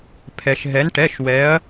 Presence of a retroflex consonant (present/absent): present